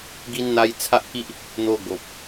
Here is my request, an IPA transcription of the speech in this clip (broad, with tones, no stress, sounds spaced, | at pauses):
ɡ i˧ n n̪ a˧ j t͡sʰ a˦ ʔ k i˦ ʔ | n̪ o˧ ɡ o˨ p̚